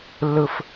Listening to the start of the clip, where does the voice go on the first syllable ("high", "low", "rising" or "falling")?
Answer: high